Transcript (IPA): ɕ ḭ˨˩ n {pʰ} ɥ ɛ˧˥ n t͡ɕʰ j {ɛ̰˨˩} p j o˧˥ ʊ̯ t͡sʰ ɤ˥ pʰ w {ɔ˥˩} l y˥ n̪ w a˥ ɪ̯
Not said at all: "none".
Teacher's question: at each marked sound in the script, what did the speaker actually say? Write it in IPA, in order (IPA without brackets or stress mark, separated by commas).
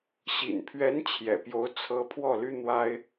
pʰ, ɛ̰˨˩, ɔ˥˩